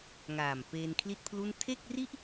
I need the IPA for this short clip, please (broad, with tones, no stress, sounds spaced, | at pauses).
ŋ aː˨˩ m p eː˧ n kʰ l i˥˩ t̚ pʰ l u˥˩ n tʰ e˥˩ k̚ r i˥˩ ʔ